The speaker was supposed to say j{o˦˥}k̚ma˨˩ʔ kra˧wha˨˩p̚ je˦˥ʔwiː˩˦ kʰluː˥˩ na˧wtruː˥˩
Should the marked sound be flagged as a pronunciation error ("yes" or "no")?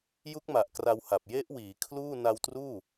yes